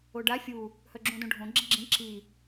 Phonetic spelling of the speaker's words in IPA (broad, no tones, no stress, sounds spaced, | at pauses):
o ɖ a fʲ u | h œ ɡ͡ǁ ũ d õ ɖʱ õ ɡ͡ǁ i ɡ͡ǁ ĩ ǁ i